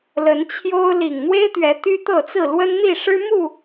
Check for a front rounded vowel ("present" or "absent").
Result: present